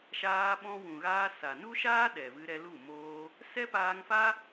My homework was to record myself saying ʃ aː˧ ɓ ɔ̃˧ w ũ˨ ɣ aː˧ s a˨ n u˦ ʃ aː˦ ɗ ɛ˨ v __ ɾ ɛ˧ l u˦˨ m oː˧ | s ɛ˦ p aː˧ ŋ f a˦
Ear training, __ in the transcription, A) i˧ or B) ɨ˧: B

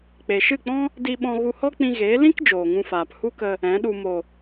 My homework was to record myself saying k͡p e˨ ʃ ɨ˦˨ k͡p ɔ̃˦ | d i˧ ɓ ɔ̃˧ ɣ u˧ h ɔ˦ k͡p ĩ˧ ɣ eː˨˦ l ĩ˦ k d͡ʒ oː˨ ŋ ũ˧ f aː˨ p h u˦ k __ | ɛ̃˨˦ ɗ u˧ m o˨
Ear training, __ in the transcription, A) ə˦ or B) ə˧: B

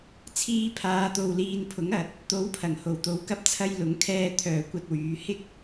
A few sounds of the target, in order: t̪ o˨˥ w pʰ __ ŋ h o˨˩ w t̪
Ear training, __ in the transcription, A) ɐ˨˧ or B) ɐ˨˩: B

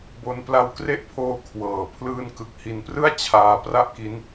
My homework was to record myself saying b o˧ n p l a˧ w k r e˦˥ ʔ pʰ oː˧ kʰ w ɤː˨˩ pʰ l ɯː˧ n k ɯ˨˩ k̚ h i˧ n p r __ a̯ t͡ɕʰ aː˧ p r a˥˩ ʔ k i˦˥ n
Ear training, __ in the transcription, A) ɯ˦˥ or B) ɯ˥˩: B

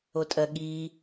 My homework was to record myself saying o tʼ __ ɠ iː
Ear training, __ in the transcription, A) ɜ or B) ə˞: A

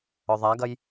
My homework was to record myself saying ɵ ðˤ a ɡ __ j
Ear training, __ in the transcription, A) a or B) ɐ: B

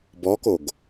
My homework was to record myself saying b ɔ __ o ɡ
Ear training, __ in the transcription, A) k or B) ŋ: A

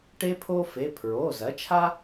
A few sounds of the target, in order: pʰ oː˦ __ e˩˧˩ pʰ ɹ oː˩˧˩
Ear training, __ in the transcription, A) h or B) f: B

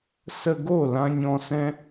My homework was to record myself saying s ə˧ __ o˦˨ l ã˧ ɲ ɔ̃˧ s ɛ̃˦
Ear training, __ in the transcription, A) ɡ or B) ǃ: A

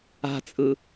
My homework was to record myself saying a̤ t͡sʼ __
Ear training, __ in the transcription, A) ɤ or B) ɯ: B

